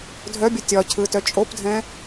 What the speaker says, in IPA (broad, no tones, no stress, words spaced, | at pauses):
dʱœbʲə tʲɒcʰɯtœ t͡ʃʼopdʱɛ̃